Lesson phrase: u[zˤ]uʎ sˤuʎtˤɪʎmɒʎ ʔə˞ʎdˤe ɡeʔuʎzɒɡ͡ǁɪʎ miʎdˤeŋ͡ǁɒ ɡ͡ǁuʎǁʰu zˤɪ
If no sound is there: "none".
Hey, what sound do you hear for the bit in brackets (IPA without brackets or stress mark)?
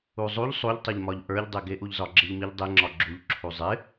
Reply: zˤ